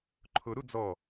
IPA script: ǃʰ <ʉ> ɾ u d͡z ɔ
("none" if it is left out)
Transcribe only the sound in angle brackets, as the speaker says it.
ʊ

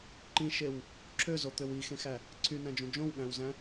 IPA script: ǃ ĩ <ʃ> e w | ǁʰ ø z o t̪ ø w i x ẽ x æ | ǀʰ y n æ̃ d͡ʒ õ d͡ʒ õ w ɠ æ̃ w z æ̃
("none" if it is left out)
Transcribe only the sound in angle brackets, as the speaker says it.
ʃ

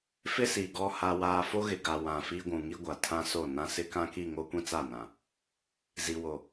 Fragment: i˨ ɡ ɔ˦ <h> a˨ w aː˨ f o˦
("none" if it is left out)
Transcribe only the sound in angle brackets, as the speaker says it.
h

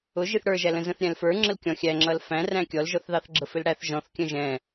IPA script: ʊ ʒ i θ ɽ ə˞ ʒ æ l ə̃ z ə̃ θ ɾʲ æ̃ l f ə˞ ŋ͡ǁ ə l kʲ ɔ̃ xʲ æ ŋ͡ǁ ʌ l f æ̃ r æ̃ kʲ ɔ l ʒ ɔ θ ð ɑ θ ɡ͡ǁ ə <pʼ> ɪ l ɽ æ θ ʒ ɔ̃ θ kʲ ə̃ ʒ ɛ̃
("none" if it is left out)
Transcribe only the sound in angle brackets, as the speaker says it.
f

